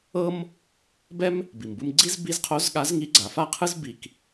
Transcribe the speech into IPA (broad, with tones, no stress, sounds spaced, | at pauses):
ɤ˥ m | b ɛ˥ m | b i˩ m b ɯ˧ m ɡ͡ǀ i˥ z b i˧˥ z qʰ o˧˥ z ɠ a˧˥ z ŋ i˧˥ ɡ͡ǀ a˩˧ f a˥ qʰ ɯ˥ z b i˧ k